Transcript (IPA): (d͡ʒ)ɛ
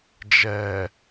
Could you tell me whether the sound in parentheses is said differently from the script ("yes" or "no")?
no